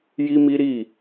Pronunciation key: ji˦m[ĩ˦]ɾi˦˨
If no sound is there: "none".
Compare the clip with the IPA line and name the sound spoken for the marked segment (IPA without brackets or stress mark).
i˦